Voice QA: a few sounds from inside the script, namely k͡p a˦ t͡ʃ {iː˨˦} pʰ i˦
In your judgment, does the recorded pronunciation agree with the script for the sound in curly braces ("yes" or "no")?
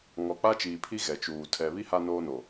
no